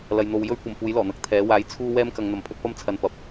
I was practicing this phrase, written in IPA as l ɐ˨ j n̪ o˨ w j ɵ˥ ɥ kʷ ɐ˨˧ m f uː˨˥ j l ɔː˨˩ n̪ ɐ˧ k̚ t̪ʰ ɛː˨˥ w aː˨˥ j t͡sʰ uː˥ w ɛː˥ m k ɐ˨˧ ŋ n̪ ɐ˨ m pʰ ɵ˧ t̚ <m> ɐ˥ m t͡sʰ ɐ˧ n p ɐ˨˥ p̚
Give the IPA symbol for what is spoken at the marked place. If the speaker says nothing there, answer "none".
p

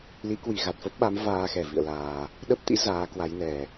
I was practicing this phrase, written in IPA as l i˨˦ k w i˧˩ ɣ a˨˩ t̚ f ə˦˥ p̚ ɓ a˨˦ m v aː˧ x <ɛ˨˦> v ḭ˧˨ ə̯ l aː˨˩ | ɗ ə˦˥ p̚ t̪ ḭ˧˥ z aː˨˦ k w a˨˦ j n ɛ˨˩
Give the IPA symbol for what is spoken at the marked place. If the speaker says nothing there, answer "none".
ɛ˧˩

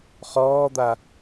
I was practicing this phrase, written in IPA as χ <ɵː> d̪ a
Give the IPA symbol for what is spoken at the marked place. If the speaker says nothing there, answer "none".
ɔː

